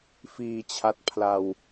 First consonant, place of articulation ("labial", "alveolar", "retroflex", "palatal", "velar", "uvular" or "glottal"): labial